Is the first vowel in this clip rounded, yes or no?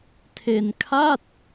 no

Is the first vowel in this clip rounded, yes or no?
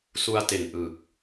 yes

